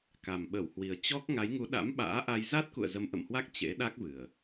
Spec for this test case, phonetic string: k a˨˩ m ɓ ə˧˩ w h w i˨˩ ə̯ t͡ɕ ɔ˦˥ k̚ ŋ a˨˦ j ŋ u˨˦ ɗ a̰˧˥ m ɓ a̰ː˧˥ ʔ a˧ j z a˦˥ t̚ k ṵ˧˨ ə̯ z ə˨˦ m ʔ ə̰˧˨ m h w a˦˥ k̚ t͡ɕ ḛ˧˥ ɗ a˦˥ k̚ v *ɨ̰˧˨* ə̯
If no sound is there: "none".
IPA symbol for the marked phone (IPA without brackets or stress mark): ɨ˨˩